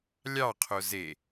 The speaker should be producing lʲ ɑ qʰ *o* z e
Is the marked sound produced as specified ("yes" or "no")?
yes